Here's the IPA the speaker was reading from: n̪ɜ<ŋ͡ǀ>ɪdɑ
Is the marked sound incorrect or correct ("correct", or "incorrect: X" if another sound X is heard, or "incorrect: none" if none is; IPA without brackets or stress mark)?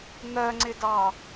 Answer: correct